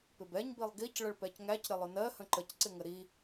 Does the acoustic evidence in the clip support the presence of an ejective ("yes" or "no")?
no